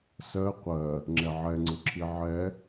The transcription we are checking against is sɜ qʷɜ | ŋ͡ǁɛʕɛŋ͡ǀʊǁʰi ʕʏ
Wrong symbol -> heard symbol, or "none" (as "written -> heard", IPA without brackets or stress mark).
ʏ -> ɛ